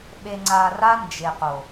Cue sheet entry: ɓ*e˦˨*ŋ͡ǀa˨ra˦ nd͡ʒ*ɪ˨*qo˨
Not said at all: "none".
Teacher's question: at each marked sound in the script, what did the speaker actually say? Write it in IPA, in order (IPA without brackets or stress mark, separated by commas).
e˨, ɪ˨